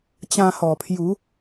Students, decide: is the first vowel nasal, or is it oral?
nasal